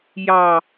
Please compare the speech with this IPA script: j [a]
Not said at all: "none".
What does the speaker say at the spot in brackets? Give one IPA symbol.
ɑ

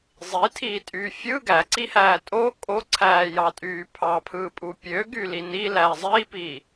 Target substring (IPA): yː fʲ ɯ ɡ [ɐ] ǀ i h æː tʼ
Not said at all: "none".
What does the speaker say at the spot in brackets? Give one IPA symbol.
æ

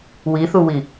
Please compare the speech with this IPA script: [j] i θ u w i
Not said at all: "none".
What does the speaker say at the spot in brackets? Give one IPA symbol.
w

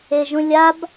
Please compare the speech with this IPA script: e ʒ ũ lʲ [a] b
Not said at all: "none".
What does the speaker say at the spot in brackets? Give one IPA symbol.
a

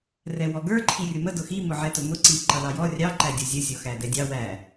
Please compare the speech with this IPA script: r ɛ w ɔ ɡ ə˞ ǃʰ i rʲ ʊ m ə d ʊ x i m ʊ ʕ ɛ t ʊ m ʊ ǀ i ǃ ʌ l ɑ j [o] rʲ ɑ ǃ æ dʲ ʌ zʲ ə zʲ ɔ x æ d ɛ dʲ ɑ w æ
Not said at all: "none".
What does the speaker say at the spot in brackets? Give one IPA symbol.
ɔ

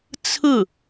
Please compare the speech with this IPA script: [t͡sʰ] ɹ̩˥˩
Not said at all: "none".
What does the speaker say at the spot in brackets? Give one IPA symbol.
t͡sʰ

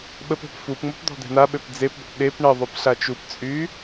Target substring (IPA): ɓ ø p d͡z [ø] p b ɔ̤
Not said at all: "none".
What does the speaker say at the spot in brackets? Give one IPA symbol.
e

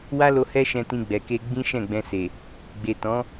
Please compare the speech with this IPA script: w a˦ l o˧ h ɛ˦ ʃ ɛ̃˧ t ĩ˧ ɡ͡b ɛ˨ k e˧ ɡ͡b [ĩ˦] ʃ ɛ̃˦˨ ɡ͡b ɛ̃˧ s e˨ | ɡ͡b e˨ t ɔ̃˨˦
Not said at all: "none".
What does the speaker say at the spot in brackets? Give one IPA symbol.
ĩ˦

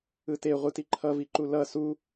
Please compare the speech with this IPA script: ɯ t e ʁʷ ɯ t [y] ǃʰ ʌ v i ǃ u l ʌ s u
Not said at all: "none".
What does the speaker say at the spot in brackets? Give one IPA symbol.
i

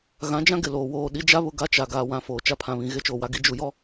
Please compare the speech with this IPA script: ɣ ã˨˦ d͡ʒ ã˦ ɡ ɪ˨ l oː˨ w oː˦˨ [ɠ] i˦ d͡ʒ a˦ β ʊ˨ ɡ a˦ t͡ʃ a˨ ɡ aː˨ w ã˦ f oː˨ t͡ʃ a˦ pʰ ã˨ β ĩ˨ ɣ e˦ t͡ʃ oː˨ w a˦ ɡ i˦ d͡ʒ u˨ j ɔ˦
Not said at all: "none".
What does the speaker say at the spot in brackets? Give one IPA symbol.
ɗ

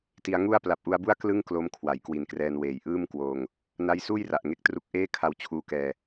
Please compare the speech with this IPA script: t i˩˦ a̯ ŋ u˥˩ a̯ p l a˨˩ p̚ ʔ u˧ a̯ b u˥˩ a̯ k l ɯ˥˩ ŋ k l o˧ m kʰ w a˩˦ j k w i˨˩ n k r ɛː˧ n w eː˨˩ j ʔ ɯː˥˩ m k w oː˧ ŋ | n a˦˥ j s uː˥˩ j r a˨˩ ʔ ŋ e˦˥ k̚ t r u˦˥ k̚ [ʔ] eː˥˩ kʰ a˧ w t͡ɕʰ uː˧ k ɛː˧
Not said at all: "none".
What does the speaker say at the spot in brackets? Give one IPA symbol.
ʔ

